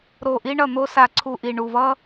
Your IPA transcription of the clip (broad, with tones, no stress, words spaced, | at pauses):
ɾo˨˩ʔi˧ ɳʌ˨˩n̪o˧ sa˨˩ǀʰu˨˩ʔi˨˩ ɳu˨˩vʌ˧